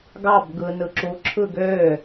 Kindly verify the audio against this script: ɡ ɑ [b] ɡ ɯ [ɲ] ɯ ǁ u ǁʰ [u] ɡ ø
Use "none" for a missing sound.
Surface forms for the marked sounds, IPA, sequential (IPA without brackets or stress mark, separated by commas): b, n, ɯ